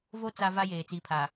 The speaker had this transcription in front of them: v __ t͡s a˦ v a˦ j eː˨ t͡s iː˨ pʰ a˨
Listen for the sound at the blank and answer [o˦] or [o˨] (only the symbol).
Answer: o˦